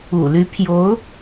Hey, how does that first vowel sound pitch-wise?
low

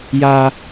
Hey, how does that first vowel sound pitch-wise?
high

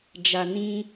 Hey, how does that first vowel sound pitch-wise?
low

